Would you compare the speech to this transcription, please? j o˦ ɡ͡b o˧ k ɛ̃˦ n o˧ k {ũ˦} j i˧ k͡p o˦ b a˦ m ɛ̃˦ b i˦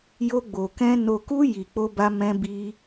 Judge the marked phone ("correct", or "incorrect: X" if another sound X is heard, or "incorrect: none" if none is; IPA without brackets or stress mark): incorrect: u˦